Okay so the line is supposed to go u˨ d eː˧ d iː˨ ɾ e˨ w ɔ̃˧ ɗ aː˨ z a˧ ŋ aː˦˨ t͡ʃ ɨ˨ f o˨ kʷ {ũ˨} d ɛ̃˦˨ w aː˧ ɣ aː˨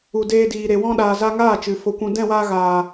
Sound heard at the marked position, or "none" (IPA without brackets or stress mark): ũ˨